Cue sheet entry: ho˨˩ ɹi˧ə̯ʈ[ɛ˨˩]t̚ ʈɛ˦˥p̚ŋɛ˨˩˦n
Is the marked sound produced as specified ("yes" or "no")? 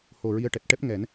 yes